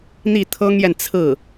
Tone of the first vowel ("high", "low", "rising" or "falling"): falling